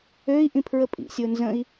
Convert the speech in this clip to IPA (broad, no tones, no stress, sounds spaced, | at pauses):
ø i̯ ʔ ĩ pʰ ɹ ə pʼ ḭ sʲ o n z ə̃ i̯